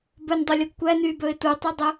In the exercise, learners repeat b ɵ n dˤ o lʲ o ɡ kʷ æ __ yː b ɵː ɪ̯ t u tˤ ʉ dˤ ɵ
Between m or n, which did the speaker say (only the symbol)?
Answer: n